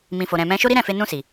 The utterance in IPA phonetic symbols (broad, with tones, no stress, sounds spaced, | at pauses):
m ĩ˨ f o˨ ɾ ɛ̃˨ m ɛ̃˧ ʃ o˦ ɾ i˦ ɾ ɛ̃˦˨ f e˧ n ũ˧ s i˨